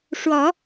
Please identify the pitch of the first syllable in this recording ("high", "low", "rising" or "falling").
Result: rising